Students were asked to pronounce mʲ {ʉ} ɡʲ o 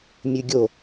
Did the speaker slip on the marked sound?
no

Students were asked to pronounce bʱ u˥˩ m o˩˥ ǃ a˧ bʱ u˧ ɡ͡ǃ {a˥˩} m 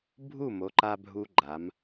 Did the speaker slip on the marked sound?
yes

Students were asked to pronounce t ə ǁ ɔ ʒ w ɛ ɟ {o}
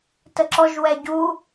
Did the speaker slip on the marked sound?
yes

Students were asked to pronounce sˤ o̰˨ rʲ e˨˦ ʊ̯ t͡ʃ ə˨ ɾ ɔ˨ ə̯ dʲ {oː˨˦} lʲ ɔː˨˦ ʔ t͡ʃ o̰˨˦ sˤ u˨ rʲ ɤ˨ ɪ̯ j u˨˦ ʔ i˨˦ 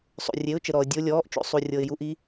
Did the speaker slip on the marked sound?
yes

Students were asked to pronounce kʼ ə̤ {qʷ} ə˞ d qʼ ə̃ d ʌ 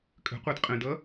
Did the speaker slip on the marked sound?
no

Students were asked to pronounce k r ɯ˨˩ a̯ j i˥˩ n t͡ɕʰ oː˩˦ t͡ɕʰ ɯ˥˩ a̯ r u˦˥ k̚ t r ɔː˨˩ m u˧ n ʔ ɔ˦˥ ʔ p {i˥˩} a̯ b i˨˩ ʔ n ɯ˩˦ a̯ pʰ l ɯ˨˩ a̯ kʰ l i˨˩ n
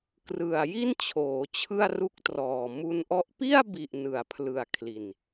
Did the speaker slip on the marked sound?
no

